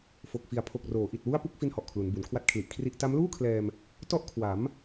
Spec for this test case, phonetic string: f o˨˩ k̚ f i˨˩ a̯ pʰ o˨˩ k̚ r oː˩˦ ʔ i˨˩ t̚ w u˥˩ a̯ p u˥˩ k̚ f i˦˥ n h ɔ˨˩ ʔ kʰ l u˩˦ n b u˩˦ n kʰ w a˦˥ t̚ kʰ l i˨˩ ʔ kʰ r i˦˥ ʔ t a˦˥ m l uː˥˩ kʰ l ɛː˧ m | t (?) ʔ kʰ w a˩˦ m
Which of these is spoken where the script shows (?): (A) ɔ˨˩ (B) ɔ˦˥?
B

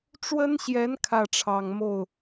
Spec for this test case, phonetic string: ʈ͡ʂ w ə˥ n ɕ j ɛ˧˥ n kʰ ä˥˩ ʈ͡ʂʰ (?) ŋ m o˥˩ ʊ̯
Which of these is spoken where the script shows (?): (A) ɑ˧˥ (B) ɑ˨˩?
B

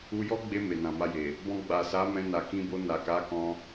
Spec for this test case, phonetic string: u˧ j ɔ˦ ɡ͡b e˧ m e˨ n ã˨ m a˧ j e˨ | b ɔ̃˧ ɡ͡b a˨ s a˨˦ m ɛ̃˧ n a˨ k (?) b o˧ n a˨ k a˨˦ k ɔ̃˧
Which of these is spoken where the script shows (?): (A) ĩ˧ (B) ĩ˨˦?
A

